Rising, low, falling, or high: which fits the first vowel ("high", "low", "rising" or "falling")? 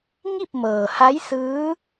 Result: falling